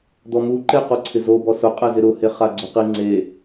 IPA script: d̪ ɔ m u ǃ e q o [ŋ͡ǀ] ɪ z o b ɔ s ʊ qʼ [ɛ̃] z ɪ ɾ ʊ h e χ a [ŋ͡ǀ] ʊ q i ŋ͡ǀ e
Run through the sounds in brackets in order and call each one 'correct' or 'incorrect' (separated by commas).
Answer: incorrect, incorrect, incorrect